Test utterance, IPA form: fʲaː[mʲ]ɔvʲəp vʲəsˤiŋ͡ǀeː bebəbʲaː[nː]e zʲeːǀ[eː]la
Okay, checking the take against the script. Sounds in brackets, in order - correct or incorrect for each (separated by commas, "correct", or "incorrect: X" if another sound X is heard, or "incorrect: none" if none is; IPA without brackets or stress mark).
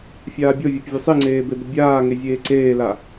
incorrect: bʲ, incorrect: ŋ, correct